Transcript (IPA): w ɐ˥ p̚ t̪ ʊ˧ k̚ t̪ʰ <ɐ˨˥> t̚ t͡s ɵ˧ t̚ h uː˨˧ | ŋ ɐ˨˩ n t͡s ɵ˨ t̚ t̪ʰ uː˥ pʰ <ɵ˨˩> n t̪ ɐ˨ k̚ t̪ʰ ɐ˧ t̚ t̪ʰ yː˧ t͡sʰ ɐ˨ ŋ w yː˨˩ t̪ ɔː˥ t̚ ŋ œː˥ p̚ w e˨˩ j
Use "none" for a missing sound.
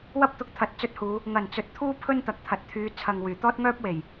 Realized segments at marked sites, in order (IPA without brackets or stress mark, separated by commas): ɐ˨˥, ɵ˥